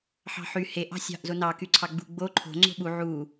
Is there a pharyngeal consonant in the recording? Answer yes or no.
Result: yes